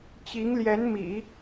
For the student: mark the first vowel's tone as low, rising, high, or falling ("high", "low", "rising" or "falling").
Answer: rising